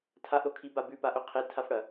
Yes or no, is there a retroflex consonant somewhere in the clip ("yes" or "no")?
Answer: yes